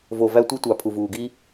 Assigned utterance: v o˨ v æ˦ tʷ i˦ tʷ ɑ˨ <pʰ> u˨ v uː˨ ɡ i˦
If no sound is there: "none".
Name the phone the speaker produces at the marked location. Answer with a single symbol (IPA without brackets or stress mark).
pʰ